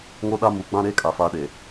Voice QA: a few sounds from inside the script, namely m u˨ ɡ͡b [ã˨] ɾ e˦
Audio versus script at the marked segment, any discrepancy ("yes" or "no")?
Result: yes